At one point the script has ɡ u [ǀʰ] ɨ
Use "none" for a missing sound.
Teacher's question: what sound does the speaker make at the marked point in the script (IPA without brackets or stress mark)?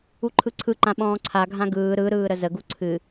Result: ǀʰ